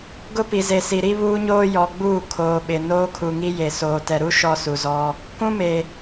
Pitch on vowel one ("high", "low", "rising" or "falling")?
high